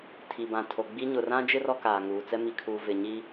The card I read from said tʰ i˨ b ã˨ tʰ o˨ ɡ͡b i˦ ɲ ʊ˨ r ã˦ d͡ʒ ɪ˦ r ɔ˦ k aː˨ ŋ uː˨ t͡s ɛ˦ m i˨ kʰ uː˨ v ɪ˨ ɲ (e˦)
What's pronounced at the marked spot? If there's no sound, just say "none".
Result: i˦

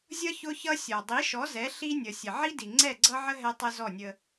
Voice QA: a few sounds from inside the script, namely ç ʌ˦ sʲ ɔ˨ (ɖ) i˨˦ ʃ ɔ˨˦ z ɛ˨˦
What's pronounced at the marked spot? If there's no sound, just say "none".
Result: dˤ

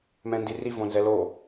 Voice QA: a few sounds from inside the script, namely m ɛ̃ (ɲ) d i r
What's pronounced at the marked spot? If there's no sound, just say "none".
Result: n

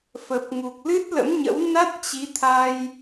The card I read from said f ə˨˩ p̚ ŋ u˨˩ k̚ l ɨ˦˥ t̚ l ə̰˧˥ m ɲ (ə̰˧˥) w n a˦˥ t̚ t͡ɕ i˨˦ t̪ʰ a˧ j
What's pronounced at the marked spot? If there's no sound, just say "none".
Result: ə̰˧˥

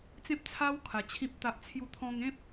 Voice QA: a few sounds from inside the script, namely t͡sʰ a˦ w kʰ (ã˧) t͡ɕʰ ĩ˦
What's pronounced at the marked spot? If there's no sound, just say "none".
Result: a˧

